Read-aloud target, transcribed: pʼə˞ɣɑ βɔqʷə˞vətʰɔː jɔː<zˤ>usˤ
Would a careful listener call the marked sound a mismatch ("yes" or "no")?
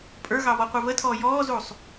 yes